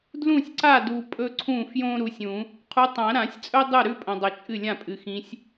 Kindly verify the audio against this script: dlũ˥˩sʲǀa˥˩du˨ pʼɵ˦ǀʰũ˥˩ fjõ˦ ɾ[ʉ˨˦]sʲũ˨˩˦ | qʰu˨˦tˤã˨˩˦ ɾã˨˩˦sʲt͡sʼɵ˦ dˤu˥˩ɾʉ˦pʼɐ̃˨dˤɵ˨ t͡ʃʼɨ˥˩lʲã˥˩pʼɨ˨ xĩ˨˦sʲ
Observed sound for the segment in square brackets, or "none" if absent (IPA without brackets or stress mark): u˨˦